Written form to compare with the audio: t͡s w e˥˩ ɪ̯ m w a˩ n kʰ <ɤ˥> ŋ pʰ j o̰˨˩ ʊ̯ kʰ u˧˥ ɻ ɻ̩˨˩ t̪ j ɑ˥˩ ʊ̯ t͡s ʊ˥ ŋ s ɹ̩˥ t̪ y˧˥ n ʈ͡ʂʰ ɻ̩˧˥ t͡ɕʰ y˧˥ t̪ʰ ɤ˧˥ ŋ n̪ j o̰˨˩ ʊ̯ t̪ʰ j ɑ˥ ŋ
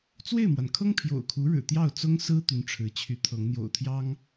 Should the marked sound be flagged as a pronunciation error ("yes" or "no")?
no